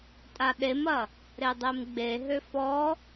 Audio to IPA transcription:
tʼ a ɗ e m ɐ | ɾ e dˤ e m ɡ͡b e ɦ ø f ɔ

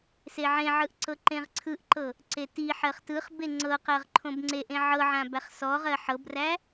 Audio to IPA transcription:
s e ʕ ẽ ʕ ɯ ʔ ǀ ɤ ǃ ẽ ʁ ǀʰ ɯ ʔ ǃ ɤ | ǀ e t i ħ ɜ χ t ɯ χ b e ŋ͡ǀ ɤ q ɜ ʁ ǃʰ õ b ŋ͡ǀ e ʔ ẽ ʕ ɤ ʕ ã b æ χ s ɔ ʁ ɜ ħ ɤ b r æ

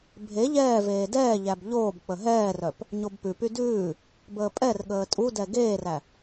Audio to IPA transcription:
bʱ e ʎ ɛː v eː d ɛː ʎ æ b ʎ oː b k͡p ə ɦ ɛː r œ p | ɲ o b p ʉ p y d ʉː | b əː pʼ ɛ r ɠ əː tʼ u d ɛ ɡ eː r æ

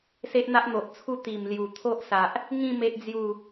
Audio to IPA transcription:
s e˦ ʔ n̪ a˦ ʔ n̪ o˨ ʔ t͡sʰ u˥˧ t̪ i˨˩ m l j u˨˩ t̪ʰ o˦ ʔ s a˨ ʔ | ŋ ĩ˥˧ m e˦ ʔ d͡z j u˥˧

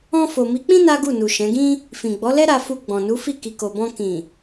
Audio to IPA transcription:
ɔ̃˧ f o˨ m i˨˦ k͡p ĩ˦ n a˦ ɡ u˦˨ n u˨ ʃ ɛ̃˨˦ ɡ ĩ˦ | f ĩ˨ ɡ͡b ɔ˨˦ l ɛ˦ ɾ a˧ f u˧ ɡ͡b ɔ̃˨ n u˨˦ f i˦˨ k i˨ k o˨ b ɔ̃˧ k ĩ˨

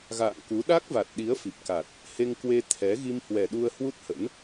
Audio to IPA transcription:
ɣ a̰ː˧˨ ŋ k u˨˦ ɗ a˦˥ k̚ v a˨˩ t̚ ɗ i˨˦ ə̯ f i˨˩ p̚ k a˨˩ t̚ | h e˧ ŋ k w e˧ t̪ʰ ɛ˨˦ ɣ i˧ m h w ɛ˨˩ ɗ u˧ ə̯ h w u˦˥ t̚ h ə̰˧˥ n

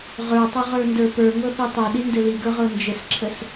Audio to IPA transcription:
ʁ ə˞ tˤ ɘ ʁ ə˞ n d ə˞ p ə˞ ŋ ɤ θ i tˤ ɤ ɗ i n d ɘ l i ɡ ə˞ ʁ ɤ n d͡ʒ ɘ s ǁʰ ə s

